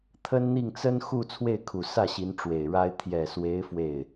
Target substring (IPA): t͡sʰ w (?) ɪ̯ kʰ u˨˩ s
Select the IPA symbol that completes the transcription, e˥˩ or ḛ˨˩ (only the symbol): e˥˩